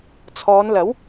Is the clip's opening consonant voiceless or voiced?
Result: voiceless